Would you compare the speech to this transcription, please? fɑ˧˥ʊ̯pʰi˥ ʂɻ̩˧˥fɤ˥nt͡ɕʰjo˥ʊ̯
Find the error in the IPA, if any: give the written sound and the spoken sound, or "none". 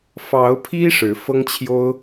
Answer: n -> ŋ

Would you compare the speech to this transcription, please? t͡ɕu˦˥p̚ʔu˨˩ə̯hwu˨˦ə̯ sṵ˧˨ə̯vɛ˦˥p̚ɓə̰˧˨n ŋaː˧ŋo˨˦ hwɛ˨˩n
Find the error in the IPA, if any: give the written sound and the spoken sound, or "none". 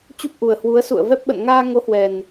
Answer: none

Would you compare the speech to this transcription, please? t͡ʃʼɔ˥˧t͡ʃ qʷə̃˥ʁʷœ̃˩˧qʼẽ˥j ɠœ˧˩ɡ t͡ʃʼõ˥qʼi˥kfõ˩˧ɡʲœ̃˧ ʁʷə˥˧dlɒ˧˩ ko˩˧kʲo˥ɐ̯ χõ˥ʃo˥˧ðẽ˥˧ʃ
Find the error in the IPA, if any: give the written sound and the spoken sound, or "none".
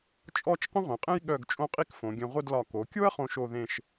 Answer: none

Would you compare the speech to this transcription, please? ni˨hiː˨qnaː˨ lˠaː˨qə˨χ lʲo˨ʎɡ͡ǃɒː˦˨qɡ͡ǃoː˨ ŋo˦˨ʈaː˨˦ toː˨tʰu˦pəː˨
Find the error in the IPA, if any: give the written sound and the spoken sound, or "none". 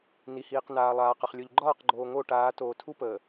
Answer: none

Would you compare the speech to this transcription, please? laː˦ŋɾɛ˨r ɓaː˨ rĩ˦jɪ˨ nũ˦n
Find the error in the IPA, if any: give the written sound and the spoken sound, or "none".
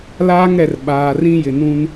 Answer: none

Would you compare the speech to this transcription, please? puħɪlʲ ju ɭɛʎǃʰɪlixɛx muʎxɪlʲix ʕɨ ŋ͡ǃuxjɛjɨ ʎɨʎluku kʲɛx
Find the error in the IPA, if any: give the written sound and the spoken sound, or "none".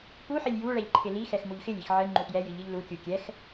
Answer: k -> kʲ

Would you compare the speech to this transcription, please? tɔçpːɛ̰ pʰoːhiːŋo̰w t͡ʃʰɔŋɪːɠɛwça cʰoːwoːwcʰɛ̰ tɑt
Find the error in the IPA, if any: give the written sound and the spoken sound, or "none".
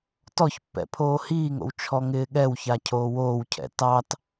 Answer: none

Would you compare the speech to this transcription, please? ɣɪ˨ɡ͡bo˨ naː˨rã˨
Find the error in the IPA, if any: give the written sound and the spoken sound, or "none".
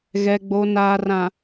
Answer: ɪ˨ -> ɛ˨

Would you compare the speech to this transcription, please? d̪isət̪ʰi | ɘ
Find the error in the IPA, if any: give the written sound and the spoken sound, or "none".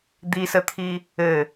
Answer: none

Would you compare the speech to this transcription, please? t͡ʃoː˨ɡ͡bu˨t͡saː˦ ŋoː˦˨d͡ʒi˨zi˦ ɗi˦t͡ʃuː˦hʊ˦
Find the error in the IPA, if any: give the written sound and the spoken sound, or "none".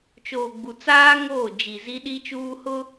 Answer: none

